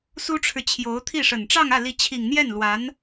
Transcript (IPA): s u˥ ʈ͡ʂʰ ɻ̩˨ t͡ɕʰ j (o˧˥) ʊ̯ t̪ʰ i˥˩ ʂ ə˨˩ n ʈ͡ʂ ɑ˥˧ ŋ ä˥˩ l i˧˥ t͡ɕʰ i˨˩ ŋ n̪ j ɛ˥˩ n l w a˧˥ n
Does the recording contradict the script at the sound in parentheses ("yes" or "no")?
no